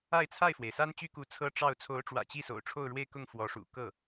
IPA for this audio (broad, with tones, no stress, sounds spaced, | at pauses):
a˥˧ ɪ̯ t͡sʰ a˥˩ ɪ̯ f w e˩ ɪ̯ s a˥ n t͡ɕ y˥ k u˧˥ t͡sʰ ɤ˥ ʈ͡ʂ ɑ˥˩ ʊ̯ t͡sʰ o˧˥ ʊ̯ ʈ͡ʂ w ä̰˨˩ t͡ɕ i˥˩ s o̰˨˩ ʊ̯ ʈ͡ʂʰ o˥˧ ʊ̯ ɻ w e˥˧ ɪ̯ k ʊ˥˩ ŋ f w ɔ˧˥ ʂ ṵ˨˩ k ɤ˥˩